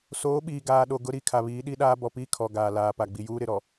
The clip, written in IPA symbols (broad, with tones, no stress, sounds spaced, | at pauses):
s oː˨˦ ɓ iː˨ ɡ aː˨ ɗ o˨ ɡ ʊ˦ ɾ i˦˨ kʰ a˨ β iː˨˦ ɗ i˦ ɗ aː˦ b ɔ˨ p iː˦ kʰ ɔ˨ ɡ aː˨ l aː˨ p a˨ ɡ͡b i˨ j uː˦ ɾ ɪ˨ ɾ ɔ˨